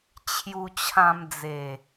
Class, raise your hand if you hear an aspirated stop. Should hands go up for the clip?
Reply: yes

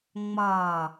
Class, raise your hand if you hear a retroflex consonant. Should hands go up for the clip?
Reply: no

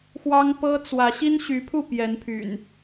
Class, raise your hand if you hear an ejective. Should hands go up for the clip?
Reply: no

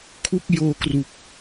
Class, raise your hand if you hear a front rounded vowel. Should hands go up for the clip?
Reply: no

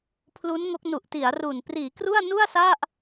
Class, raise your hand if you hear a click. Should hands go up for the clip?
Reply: no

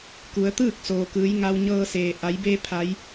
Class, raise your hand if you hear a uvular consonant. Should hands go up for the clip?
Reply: no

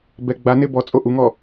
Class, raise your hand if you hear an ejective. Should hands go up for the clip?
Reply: yes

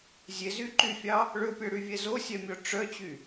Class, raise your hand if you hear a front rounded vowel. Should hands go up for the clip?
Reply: yes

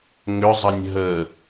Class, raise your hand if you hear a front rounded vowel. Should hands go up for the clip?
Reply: yes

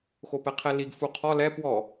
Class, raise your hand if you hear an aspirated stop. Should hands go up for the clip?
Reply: yes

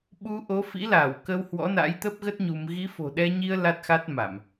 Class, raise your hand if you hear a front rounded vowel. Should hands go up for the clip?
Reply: no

